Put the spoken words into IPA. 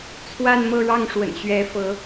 t͡sʰ w a˥˧ n m ɤ˥˧ ɻ ɑ˥˩ ŋ ʂ w ə̰˨˩ n ɕ ɥ ɛ˧˥ f ɤ˧˥

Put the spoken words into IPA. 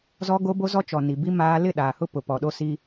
z ɔ˦ ɡ o˦ b o˦ z ɔ˦ t͡ʃ ɔ˨ n i˨ b i˦ m aː˦ l ɪ˦˨ ɗ aː˨ h ʊ˦ p ʊ˨ p ɔ˨ ɗ o˦ s i˦

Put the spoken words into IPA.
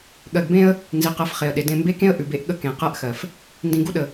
ɠ ɜ˨ ɡ b ẽ˦ ə̯ | n z i˨ q ɜ˨˦ f χ e˨ ə̯ ɗ e˨ d ẽ˦˨ m b e˦ k ẽ˦ ə̯ ʔ ʉ˨ b e˦ ʔ ɠ ə˦ k ẽ˨ q ɜ˦ ʔ x ɜ˨ f | n d ĩ˨ ɡ u˦ ɗ ə˨

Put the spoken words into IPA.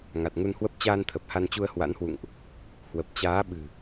ŋ a˨˩ t̚ ŋ u˧ n h w ə˦˥ p̚ t͡ɕ aː˧ n t̪ʰ ə˨˩ p̚ h a˧ n t͡ɕ u˧ ə̯ h w a̰˧˥ n h w ṵ˧˨ ŋ ʔ | h w ə˨˩ p̚ t͡ɕ aː˨˦ ɓ ɨ̤˨˩

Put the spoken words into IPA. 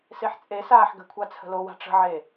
s e ħ t͡sʼ e s aː ħ ɡ ə̤ kʷʰ a t͡sʰ ə̤ l o w a̤ ʈ͡ʂ ə̤ ʕ e

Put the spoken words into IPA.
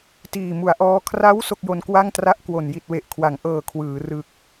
t iː˨˩ m u˩˦ a̯ ʔ ɔː˦˥ kʰ r a˦˥ w s o˥˩ k̚ j o˧ n k w a˥˩ ŋ t r a˥˩ ʔ k w o˨˩ n j i˨˩ t̚ w e˨˩ ʔ kʰ w a˩˦ ŋ ʔ ɤː˨˩ kʰ w ɯː˩˦ r ɯ˨˩ k̚

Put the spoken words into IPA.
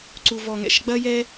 ǀ u˨ v ɔ˨ ŋ ɛ̰˦ ʃ ɡ͡b ɐ˦ j ɛ˦

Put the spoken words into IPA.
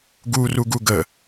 ɡ u r u ɡ u ɡ ə

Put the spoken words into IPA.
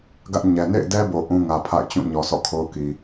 ɡ ä˦ ʔ ɲ ɛ˨ n ḛ˦˨ ɪ̯ d ɛ˦ b o˨ ʔ ũ˦ ŋ ä˨ pʰ a̰˦˨ ɪ̯ t͡ɕ ũ˦˨ ɲ ɔ˨ sʰ ɔ̰˦˨ kʰ o˦ ʊ̯ k i˨

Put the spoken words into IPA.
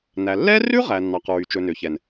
n æ˨ lː ɛ˦ r ʉ˦ ʁ æ˨ nː ɑ˨ q ɹ y˨ t͡ʃ ɵ˨ n ø˨ ç ɛ˨ n

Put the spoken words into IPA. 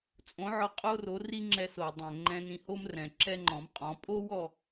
t͡sʼ õ˩˥ ʕ ɔ˧ qʼ o˥ r o˩˥ r i˥ ŋ͡ǁ ɛ˧ s o˩ dˤ ɛ̃˩ ŋ͡ǃ ɛ̃˧ n ĩ˧ h o˥ m r ɛ̃˩ ǁ ɛ˥ ŋ͡ǃ ɔ̃˩˥ m qʼ ɔ̃˩˥ pʼ o˥ w ɔ˥

